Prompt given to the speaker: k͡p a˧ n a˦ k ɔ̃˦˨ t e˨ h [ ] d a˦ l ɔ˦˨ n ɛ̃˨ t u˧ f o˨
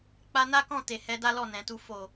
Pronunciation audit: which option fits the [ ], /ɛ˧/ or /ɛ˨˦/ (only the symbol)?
ɛ˨˦